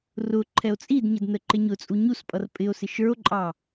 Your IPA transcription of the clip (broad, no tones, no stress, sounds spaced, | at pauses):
r ʊ ǃʰ ɛ o̯ t͡sʼ i d ɲ ə d n ə ǃ ɪ ɲ ʊ t͡sʼ u ɲ u s pʼ ʌ r pʼ ɪ o̯ s ɪ ʃ ə˞ o̯ ǃʼ ɑ